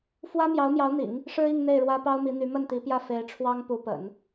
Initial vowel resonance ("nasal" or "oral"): oral